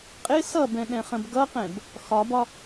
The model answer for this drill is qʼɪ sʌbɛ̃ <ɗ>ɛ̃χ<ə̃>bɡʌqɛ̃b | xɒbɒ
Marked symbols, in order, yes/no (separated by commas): yes, yes